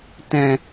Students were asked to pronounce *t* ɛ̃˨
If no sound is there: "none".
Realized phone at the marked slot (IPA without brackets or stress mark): t